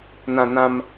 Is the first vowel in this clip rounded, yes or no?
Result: no